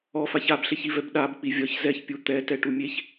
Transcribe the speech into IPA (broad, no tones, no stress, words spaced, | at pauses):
ɔfaç abɬeçivɛb ɗabk͡pi vʲɒç zɛçpʲu t̪ɛtɛʈu mʲeç